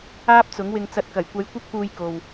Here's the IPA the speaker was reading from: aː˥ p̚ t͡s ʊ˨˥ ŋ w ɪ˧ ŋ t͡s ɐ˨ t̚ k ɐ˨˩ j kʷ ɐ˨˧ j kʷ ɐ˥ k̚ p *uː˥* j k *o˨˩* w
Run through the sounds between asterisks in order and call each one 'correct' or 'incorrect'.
incorrect, incorrect

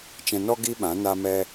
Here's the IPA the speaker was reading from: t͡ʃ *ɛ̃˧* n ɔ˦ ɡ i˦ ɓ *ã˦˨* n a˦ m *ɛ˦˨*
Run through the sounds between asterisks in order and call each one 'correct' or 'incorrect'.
correct, incorrect, incorrect

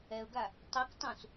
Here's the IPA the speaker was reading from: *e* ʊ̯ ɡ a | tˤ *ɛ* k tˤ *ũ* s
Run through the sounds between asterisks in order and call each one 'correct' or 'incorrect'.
incorrect, correct, correct

